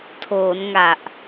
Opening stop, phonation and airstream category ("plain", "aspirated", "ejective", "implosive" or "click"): aspirated